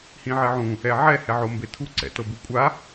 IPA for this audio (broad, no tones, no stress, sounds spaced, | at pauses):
h ĩ ʕ e ʕ ũ | ɛ ʕ ɛ h ɛ ʕ o m b e tʰ u ǀ ɛ̰ t ɤ b u kʷʼ a